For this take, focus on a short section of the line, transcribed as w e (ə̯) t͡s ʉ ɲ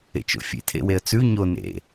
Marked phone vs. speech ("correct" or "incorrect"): correct